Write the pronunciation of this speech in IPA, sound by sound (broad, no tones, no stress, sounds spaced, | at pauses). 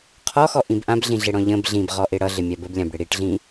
qʰ ɔ x ɔ ʔ ĩ b ʔ ã b ɮ ĩ ɮ ɪ ɽ ɔ̃ ʎ ə̃ b ɮ ĩ b ʁ ɔ ʔ ɪ ɽ ʌ ɮ ɪ mʲ a b ə b lʲ ã b ɽ ɪ ɽ i ʈ ɮ ĩ